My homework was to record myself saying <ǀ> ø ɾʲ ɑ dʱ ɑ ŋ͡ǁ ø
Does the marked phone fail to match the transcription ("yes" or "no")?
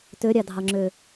yes